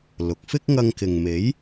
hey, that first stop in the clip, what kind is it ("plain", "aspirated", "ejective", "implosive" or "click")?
plain